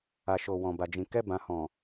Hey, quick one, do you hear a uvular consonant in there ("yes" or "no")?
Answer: no